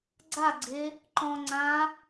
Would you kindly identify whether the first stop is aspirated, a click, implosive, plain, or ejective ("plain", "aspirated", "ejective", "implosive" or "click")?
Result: click